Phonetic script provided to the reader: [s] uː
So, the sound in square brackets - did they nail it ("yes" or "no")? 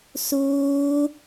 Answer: yes